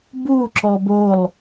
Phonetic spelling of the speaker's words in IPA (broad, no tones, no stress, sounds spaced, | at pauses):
b u ǁ ɔ b o lˠ